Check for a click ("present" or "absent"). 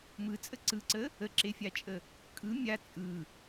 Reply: present